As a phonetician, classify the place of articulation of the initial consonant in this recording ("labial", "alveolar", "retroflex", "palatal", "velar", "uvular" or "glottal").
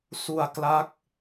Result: alveolar